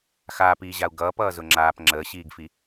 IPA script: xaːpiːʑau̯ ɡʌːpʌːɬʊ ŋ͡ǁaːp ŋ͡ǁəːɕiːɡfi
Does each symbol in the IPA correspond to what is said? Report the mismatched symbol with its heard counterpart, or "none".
ɬ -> z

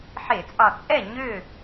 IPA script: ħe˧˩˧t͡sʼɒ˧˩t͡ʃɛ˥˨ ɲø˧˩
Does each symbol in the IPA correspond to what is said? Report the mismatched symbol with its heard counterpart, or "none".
t͡ʃ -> t͡sʼ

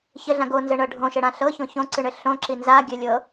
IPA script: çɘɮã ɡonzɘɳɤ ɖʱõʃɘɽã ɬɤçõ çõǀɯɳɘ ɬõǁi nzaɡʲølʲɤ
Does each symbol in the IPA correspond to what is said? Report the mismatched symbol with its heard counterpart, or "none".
ø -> ɘ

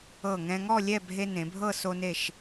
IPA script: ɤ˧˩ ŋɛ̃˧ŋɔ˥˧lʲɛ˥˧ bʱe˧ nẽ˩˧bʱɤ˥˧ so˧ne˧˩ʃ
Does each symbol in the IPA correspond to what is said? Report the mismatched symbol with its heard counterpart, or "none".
none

